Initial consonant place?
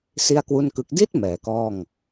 alveolar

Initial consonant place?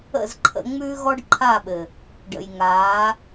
alveolar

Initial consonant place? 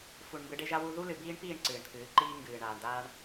labial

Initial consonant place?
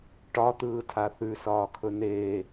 retroflex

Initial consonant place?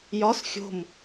palatal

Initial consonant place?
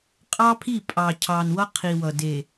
uvular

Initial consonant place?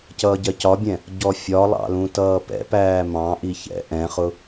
palatal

